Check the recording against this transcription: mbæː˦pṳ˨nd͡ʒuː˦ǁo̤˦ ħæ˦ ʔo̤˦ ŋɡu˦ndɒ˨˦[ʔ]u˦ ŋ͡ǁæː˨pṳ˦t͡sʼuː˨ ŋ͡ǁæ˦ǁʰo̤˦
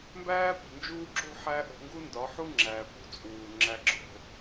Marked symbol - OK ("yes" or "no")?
no